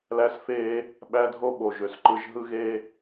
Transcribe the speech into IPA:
l æ˦ s f eː˦ | ɓ æ˦ dʱ o˦ ɓ o˨ ʒ ø˨ s ǃ ɯ˨˦ ʒ ɦ ɯ˦ ɣ e˦

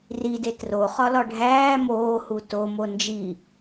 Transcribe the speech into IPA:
r i d e t r o χ ɒ l ɒ ɖʱ æː m oː h u t o m o n d͡ʒ i

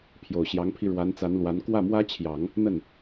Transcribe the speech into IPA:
pʰ j o˨˩ ʊ̯ ɕ j ɑ˧˥ ŋ pʰ i˧ ɻ w a˧˥ n t͡s a˧˥ n l w a˧˥ n k w ä˥˩ m w ä˥ t͡ɕʰ j ɑ˨˩˦ ŋ | n̪ ə˥˩ n

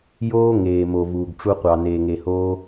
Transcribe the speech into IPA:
j oː˦ ŋ eː˨ m o˨ v uː˨ ɡ ʈ͡ʂ u˧ qʷ ɑ˨ n eː˨ ŋ e˨ h oː˧

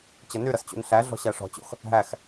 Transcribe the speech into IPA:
t͡ɕ ʌ n y ɾ ʌ s t͡ɕ ṵ n ɬ æ ɮ ɔ̤ ɕ æ ʂ ɔ̤ t͡ɕ o̰ x | ɦ æ x

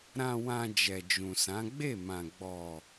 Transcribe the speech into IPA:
ɾ ã˨ w ã˨ d͡ʒ ɛ˨ d͡ʒ ũ˨ s ã˨˦ ɡ͡b e˦˨ m ã˨ ɡ͡b ɔ˨

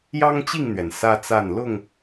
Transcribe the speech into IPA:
j ɑ˦ ŋ t͡ɕ i˥˨ ŋ n̪ ɥ ɛ˩ n s ä˦ t͡s a˥˨ n l ʊ˥˨ ŋ

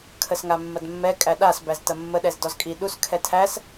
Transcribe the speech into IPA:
kʰ ə s ŋ a mː ɐ d mː ɛ kʼ æ ɗ a s b æ z t ɐ mː ə ɗ ɛ z d ɔ z kʼ i ɗ u s kʰ ɛ tʰ æ s

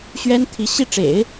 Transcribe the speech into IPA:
ɕ ɥ ɛ˥ n t̪ʰ i˧˥ ɕ i˥˩ ʈ͡ʂ ḛ˨˩˦ ɪ̯

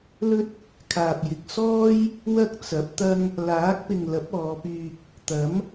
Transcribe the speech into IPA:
l ɵ˥ t̚ | kʰ aː˨ p̚ j ɪ˨ k̚ s ɔː˥ j | w ɐ˥ k̚ t͡s ɐ˨˥ p̚ t̪ ɐ˥ ŋ | l aː˨˥ k̚ p ɪ˨ ŋ l ɐ˨˥ p̚ ɔː˨˧ p yː˧ k̚ | t̪ ɐ˨˥ m

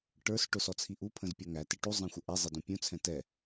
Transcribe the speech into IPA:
ʈ ə˞ s ʈ ʊ s ɔ t͡sʰ i ʔ u pʰ ə̃ z pʲ ɔ ŋ æ t ɪ ʈ u zˤ ɛ̃ xʷ ə ʔ ɛ zˤ ɪ d ũ pʲ ũ t͡sʰ ɛ̃ t ɛ

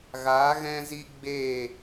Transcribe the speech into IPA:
ɣ aː˨˦ ɣ ɛ̃˦ z i˦ ɡ͡b e˦˨

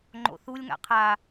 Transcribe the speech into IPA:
ŋ͡ǃ o̰ θ u lʲ ŋ a̰ qʰ a

